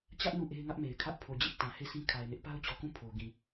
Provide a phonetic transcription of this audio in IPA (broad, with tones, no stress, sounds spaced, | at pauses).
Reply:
t͡ɕ ä˦ ʔ n u˦˨ ʔ e˦ ɪ̯ ŋ ä˦ ʔ m e˨ ɪ̯ kʰ ä˦ ʔ pʰ o˨ d͡ʑ ɪ˦ ʔ t ã˨ h e˦˨ s ĩ˦ kʰ a˨ ɪ̯ n ɪ˦ ʔ p a˦ ʊ̯ t͡ɕ ɔ˨ k ũ˦˨ pʰ o˨ ɡ ĩ˨